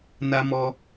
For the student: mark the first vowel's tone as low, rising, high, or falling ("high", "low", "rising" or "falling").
high